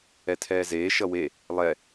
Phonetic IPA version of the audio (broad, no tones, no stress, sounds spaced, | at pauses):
ɛ tʰ ɛː z eː ʃ ʌ w e | lˠ ɛ